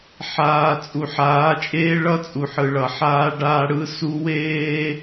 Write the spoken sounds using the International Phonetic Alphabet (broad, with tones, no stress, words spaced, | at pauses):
ħaː˨ t͡sʼu˨ħaː˨˦t͡ʃʼeː˦ ɭʌ˦ t͡sʼu˨ħɯ˨ɭʌ˨ ħaː˦ ɖaː˦ɽɯ˦su˦ weː˦